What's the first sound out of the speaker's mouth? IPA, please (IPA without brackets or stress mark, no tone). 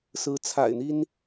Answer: s